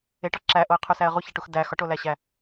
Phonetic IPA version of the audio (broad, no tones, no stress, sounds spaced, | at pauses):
e ʈ ɒ ǁ æ ʔ o ə̯ qʰ u s æ ə̯ ʁ u ç æ ʈ u x d æ x ɒ ʈ o l æ ɕ æ